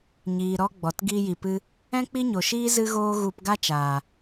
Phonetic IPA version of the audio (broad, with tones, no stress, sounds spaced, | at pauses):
ɲ iː˨ ɾ ɔ˧ ɡ͡b ɔ˨ t ɡ iː˧ j i˨ p ɨ˧ | ɛ̃˦ k͡p i˦ ɲ o˨ ʃ iː˦ z ɨ˦ ɣ oː˦ ɣ u˧ p ɡ a˦ t͡ʃ aː˨